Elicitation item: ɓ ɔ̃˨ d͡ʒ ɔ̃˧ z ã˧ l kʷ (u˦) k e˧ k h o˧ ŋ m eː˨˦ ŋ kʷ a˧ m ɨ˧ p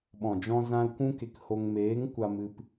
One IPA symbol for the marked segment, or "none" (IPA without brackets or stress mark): ũ˦